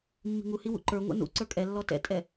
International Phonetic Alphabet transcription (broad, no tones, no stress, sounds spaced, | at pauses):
mː i̤ ŋ u h i w ṵ ǃ ə˞ ŋʷ ɛ̰ n ṵ ǀ ə˞ kʼ ɛ lː ɔ t ɛ̰ tʼ ɛ